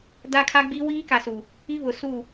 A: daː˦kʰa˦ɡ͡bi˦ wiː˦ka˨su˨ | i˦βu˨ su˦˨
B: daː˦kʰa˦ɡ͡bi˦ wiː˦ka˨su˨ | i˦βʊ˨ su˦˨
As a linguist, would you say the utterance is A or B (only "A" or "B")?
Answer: B